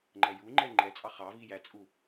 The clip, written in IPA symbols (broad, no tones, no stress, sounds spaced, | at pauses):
ŋ͡ǃ ɛ j u ŋ͡ǃ ɛ ŋ͡ǃ ɛ t͡sʼ ɑ χ ɑ v i j æ t͡sʼ u